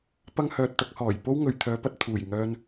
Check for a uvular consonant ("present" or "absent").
absent